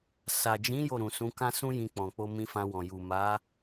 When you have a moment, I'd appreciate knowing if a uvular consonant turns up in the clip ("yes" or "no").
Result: no